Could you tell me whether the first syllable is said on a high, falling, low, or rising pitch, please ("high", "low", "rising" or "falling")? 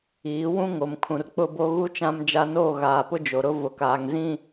rising